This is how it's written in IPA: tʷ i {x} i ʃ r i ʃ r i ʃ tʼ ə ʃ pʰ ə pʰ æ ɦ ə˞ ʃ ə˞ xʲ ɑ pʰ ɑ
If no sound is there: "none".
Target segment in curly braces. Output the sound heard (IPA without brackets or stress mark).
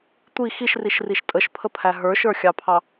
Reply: x